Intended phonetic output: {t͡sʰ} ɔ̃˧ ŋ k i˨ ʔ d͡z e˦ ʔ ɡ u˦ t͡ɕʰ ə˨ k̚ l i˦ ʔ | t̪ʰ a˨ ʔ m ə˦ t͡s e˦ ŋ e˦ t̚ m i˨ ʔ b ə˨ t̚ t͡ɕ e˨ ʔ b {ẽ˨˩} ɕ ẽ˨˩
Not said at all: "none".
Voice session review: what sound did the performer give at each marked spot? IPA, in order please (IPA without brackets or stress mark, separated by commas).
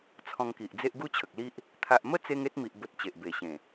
t͡sʰ, e˨˩